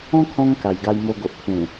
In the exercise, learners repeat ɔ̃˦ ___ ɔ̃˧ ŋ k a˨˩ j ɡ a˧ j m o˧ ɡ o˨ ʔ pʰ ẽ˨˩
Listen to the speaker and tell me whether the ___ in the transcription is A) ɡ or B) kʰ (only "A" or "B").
B